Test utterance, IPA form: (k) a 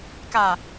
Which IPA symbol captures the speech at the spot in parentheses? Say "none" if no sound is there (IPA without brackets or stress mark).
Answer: k